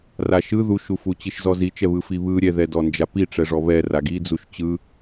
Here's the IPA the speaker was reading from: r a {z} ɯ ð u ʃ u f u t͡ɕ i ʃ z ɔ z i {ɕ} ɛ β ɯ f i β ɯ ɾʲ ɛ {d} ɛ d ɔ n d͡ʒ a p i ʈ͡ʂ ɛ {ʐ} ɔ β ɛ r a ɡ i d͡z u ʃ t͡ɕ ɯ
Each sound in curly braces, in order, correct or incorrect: incorrect: ʃ, incorrect: t͡ʃ, incorrect: ð, correct

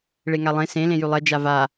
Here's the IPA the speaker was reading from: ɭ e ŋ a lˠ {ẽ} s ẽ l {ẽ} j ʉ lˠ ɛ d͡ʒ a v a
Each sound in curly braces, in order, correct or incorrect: correct, correct

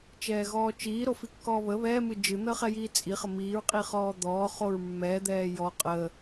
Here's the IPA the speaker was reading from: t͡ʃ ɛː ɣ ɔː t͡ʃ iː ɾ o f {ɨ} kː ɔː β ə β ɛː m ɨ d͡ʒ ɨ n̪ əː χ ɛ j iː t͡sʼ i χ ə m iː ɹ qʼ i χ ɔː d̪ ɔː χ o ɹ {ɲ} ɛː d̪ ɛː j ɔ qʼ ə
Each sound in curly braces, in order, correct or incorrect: incorrect: i, incorrect: mː

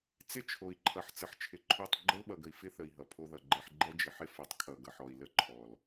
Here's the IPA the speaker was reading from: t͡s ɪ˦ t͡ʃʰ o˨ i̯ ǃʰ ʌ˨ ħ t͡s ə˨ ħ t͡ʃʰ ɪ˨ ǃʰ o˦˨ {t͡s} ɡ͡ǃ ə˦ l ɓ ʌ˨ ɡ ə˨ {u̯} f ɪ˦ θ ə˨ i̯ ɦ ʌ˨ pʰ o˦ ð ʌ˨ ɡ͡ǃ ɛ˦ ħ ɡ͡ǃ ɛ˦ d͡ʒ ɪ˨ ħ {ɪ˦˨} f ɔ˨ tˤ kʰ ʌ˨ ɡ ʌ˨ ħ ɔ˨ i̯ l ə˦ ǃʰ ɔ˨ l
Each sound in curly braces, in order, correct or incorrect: incorrect: tˤ, incorrect: i̯, incorrect: ɪ˦

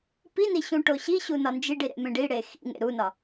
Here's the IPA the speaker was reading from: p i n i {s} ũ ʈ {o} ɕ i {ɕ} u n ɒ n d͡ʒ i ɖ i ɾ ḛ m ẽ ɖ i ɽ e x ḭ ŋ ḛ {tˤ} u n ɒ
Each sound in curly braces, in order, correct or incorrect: incorrect: ɕ, correct, correct, incorrect: ɾ

